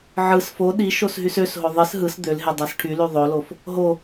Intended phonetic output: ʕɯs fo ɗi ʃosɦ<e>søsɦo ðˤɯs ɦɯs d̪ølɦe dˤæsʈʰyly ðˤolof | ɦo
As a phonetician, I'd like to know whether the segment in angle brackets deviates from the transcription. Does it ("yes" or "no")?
yes